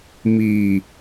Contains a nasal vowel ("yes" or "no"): no